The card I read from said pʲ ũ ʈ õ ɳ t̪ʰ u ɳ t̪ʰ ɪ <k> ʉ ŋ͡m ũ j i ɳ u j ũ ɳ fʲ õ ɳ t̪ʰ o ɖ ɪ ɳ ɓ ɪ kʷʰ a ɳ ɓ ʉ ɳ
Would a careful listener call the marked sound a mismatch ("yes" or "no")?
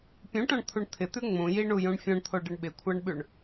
yes